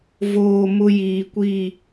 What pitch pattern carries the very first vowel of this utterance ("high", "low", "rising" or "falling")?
low